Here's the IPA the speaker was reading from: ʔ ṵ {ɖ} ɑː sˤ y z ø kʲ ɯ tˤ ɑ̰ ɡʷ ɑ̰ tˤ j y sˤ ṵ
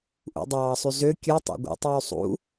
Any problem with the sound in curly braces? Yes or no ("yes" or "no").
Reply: yes